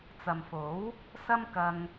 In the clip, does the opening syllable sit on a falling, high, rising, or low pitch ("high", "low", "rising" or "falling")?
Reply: low